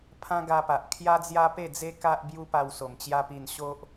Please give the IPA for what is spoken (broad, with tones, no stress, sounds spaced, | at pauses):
pʰ ã˦ ɡ a˧ p a˨ ʔ kʰ j a˦ d͡z j a˦ p e˥˧ d͡z e˦ k a˦ ʔ b j u˦ p a˧ w s o˨˩ m t͡ɕ j a˦ p i˧ n ɕ o˦ ʔ